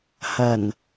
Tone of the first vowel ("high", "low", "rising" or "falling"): low